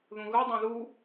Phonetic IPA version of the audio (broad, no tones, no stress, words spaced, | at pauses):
ðũɣɯ dˤẽðu